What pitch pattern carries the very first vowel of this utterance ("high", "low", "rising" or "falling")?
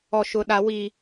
high